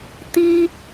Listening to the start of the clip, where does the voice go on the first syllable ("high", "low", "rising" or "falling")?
high